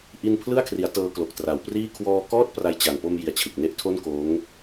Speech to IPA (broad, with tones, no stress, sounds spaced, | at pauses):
ʔ i˧ n pʰ l ɯ˥˩ a̯ kʰ r i˩˦ a̯ t ɤː˧ k l o˨˩ k̚ t r a˩˦ w p r iː˥˩ kʰ w ɔː˧ k ɔː˥˩ t̚ p r a˧ j t͡ɕ a˨˩ n p o˧ m j i˩˦ a̯ t͡ɕʰ ɯ˨˩ k̚ n e˦˥ ʔ tʰ o˥˩ n k oː˦˥ ŋ